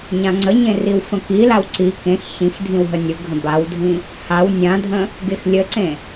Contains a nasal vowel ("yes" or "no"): yes